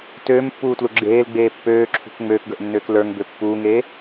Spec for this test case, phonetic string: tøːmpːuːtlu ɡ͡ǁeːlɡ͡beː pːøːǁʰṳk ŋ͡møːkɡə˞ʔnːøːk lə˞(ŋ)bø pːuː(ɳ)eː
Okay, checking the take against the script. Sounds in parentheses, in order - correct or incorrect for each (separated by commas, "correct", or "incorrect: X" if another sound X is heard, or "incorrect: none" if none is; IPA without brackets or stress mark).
correct, incorrect: ŋ